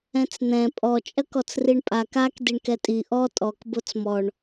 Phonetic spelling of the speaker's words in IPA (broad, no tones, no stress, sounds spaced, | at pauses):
ɛ̃ t͡s n̪ ɛ̃ pʼ ɔ t͡ʃʼ ɐ k ɔ t͡s r i ɳ pʼ a k a k d i ɳ k ɛ tʼ i ʔ ɔ tʼ ɔ k b o t͡s m ɔ ɳ